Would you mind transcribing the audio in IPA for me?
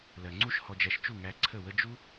l ɜ˨ ŋ͡ǀ u˦ ʃ h ɔ˧ d͡ʒ æ˧ ʃ t͡ʃ u˦˨ ŋ æ˧ ǀʰ ə˦˨ w ə˦ d͡ʒ u˦

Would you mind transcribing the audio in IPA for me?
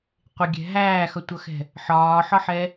qʷ ɪ ɡʲ ɛ̤ ɦ æː x ʌ tʷ ʌ x ɛ̤ | ħ ɒː ħ ɒ ħ ɛ

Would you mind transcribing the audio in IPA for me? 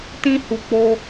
t ĩ˧ h u˨ k͡p o˧

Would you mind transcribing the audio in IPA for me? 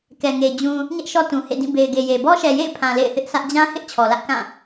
k ɛ˨ ŋ e˨ d͡ʑ ũ˨ | ɲ ɛ˦ ʔ ʃ ɔ˦ t ũ˨ h ḛ˦˨ d ĩ˦˨ b e˨ ɪ̯ ɡ e˨ j e˨ b ɔ˦ ʃ ɛ˨ j ḛ˦˨ ɪ̯ pʰ ã˨ l ḛ˦˨ ɪ̯ θ ɪ˦ ʔ sʰ ä˦ ʔ d͡ʑ ã˦ h ɪ˦ ʔ t͡ɕʰ ɔ˨ l ä˦ ʔ k ã˦˨

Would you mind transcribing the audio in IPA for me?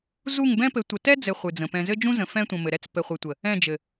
z u˦˨ ŋ b ɛ̃˦ p ɘ˨˦ tʷ ə˨ t ɛ˦ d͡z ɘ˨ χʷ ɨ˨ d͡z ə̃˨ p ɛ̃˨ z ɘ˦ d͡ʒ ũ˦ z ə̃˨ f ɛ̃˦ tʷ ə̃˨ m ɘ˨ ɾ ɛ˦ t͡s p ɘ˨ χʷ ɘ˨ tʷ ə˨ | ɛ̃˦˨ d͡ʒ ɘ˨

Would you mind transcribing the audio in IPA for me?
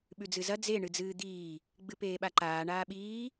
ɓ ʉ d͡z ɨ z ɐ d͡z e ɳ ɨ d͡z ɨː d̪ iː | ɡ͡b ɨ p eː ɓ a ǃ aː ɳ aː ɓ iː

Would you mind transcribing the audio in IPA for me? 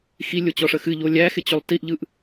x i lʲ o t͡ɕ ɔ ʂ ə x ɨ ʎ o lʲ æ x ɪ t͡ɕ o lˠ t i ʔ ʎ ɯ ʔ

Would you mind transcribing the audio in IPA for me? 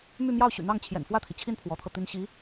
m y˥˧ m j ɑ˥˩ ʊ̯ ɕ y̰˨˩ n̪ ɑ˥˩ ŋ t͡ɕʰ j ɛ̰˨˩ n f w ä˥˩ t̪ʰ i˩ t͡ɕʰ i˥˩ n pʰ w ɔ˧˥ t̪ʰ ɤ˧ t̪ i˥ n ɕ i˧˥

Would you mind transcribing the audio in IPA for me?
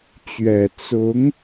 t͡ɕ ɥ ɛ˨˩ t͡s ʊ˨˦ ŋ

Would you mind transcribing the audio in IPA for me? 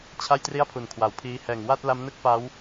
t͡ɕʰ a˥˩ j t r i˥˩ a̯ pʰ u˨˩ n kʰ w a˨˩ w pʰ iː˦˥ h ɛː˨˩ ŋ w a˥˩ t̚ l a˦˥ m n ɯ˦˥ k̚ p a˦˥ w

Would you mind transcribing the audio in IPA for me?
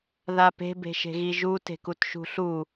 ð a p e̤ b e̤ ʃ e̤ ɣ i ʒ u t e̤ k u t ʃ ṳ ɬ u

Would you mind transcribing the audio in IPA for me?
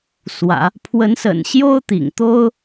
s w ä̰˨˩˦ | pʰ w ə˧˥ n s ə̰˨˩ n ɕ j o˥ ʊ̯ t̪ ḭ˨˩ ŋ t̪ o˥ ʊ̯

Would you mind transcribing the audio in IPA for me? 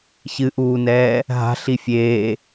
ç ɨ ʔ uː n ɛː | ɦ a̤ ɬ i fʲ eː

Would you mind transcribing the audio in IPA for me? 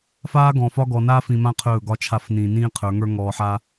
f aː˦ ɡ ɔ̃˨ f ɒ˦ ɡ ɔ˨ n aː˦ f ĩ˨ m ã˦ qʰ ɵː˦˨ ɡ ɒ˦ t͡ʃʰ a˦˨ f n ĩː˨ n ĩː˦ qʰ ə˞˨˦ ŋ ə˞˦ ŋ ɔː˨ ħ a˦

